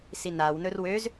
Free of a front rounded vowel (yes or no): no